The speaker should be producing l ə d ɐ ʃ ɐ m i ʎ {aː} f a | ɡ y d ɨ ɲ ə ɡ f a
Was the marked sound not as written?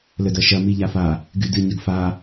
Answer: yes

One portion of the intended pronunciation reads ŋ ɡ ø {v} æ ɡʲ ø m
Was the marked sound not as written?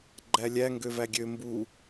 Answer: no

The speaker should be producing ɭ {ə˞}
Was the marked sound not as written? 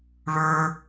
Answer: no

